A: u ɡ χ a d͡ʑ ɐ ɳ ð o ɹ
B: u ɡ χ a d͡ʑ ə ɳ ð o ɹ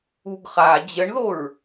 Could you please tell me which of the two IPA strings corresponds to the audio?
B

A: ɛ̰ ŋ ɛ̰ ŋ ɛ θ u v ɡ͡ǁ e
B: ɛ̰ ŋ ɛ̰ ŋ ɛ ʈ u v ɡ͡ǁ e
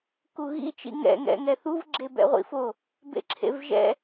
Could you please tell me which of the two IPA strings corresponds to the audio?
A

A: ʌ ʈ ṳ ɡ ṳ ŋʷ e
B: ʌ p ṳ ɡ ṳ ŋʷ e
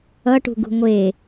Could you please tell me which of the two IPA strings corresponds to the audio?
A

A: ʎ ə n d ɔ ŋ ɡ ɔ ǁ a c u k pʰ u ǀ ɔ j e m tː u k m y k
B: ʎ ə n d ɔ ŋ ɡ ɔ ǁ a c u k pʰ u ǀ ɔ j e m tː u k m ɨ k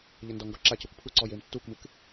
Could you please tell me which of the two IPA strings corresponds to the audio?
B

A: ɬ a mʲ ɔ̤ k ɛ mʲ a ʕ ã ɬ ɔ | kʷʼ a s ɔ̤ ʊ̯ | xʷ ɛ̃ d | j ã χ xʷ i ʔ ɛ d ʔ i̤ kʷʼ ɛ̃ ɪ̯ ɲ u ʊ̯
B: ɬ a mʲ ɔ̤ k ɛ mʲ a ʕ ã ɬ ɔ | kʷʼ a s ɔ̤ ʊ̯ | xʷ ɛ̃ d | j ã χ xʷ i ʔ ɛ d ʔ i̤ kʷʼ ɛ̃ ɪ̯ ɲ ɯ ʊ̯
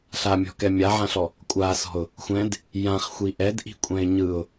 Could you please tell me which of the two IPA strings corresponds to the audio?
B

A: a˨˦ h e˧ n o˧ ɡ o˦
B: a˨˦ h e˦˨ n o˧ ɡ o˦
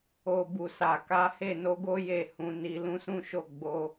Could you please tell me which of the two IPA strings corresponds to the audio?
B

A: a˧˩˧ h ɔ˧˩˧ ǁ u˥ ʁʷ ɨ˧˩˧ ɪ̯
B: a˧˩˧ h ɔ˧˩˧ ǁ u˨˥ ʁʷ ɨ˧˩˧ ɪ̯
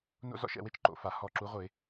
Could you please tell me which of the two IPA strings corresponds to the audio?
B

